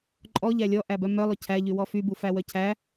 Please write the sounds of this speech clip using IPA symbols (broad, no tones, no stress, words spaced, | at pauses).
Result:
ǃʼɔʎæ lʲɔʔæbœ mœlˠɵ cʰæʎywɔ fybufæwœ cʰæ